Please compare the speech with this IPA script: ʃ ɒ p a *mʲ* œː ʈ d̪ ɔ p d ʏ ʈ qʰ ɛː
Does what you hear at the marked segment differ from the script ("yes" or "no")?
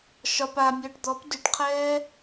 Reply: no